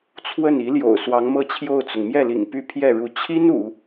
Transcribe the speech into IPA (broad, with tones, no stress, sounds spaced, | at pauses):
t͡sʰ w ə˥˩ n i˧˥ l j o̰˨˩ ʊ̯ s w ɑ˧˥ ŋ m ɤ˥˧ t͡ɕʰ j o˥˩ ʊ̯ t͡s ʊ˩ ŋ m j ɛ˥˩ l ḭ˨˩ ŋ p y˥˧ pʰ j ɛ˥˩ ɻ u˧˥ t͡ɕʰ i˥ n ṵ˨˩˦